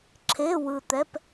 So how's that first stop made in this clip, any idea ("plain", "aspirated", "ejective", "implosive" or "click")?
click